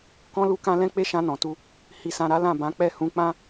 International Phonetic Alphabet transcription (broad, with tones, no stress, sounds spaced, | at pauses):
k ɔ̃˦ l u˦ k ã˦ l ɛ̃˦ k͡p e˦ ʃ ã˧ n ɔ̃˨ t u˧ | h i˧ s ã˧ ɾ a˦ l ã˦˨ b ã˨˦ k͡p ɛ˦˨ h ũ˨˦ k͡p ã˦